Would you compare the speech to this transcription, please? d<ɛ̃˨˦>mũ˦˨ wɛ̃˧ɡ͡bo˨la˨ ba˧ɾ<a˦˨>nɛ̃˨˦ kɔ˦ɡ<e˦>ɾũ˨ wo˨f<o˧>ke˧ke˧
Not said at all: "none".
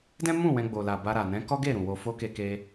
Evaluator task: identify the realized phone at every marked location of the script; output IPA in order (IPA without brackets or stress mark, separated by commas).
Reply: ɛ̃˦, a˨, e˦˨, o˧